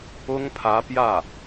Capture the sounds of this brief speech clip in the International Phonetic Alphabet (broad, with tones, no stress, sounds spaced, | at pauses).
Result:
ʊ˥ ŋ pʰ ä˧˥ p j ä˥˩